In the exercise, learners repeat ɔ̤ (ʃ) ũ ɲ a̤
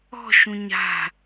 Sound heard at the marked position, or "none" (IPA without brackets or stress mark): ʃ